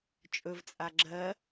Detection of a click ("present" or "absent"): present